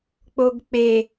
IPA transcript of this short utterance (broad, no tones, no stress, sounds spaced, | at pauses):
k͡p o ɡ k͡p e